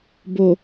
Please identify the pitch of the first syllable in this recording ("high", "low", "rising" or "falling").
low